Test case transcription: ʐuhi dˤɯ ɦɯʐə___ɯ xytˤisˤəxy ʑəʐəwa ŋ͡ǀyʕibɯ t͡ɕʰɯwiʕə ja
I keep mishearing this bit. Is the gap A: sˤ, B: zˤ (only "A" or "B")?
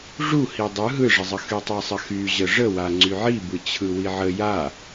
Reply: B